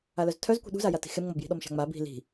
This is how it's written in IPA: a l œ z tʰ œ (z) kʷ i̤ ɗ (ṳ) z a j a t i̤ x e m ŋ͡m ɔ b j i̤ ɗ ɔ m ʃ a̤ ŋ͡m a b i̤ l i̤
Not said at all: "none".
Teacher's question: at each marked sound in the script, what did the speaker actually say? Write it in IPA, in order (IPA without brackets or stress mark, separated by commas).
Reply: z, ṳ